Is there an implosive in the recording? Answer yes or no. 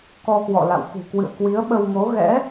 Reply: yes